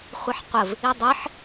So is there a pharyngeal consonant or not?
yes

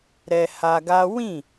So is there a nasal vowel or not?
yes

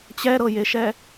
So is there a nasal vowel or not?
no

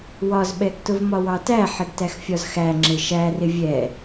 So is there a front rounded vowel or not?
no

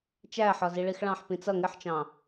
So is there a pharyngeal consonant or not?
yes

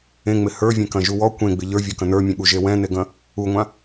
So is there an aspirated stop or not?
no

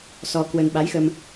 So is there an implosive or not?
yes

